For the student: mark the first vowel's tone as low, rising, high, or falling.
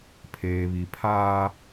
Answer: low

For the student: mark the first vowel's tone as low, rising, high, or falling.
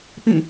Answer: falling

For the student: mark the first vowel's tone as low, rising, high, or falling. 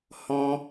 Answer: high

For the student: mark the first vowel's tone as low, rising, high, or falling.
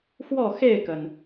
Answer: falling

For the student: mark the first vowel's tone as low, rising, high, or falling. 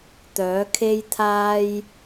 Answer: rising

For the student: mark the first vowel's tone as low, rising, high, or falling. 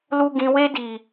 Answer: low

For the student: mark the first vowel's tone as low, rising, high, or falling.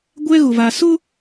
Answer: high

